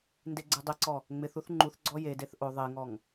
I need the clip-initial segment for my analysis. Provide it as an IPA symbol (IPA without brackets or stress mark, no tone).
n